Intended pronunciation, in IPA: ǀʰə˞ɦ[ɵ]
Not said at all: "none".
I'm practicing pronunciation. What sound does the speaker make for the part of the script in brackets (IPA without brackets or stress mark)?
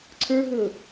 ɵ